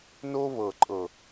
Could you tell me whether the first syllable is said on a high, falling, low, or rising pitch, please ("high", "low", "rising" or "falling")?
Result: high